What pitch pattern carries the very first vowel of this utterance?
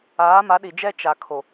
rising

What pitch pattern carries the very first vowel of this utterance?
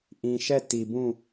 low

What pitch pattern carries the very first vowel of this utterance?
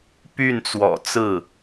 falling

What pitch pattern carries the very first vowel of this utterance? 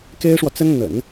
high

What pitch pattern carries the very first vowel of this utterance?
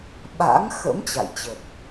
rising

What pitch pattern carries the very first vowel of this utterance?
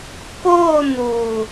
falling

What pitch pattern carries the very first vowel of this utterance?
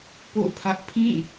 falling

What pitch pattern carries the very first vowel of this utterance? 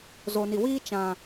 low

